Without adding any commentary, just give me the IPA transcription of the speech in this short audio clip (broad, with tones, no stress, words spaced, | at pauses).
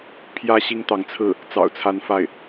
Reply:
pʰjä˧˥ ɕi˥ŋt̪ɑ˧˥ŋt͡sʰɹ̩˥˩ | t͡sɑ̰˨˩ʊ̯t͡sʰa˧˥n fa˥˩ɪ̯